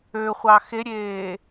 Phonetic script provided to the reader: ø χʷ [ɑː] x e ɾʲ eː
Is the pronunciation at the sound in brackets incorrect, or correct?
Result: incorrect